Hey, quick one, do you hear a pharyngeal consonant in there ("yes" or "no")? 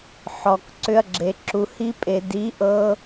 yes